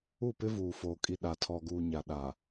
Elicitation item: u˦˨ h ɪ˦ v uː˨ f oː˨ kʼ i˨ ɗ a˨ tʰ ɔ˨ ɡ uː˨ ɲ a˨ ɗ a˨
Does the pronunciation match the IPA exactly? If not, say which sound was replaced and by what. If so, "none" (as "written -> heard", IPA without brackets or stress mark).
h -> p